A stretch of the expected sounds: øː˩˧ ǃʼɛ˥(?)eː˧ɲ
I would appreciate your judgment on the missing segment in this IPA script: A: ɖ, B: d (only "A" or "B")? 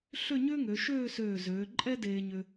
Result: B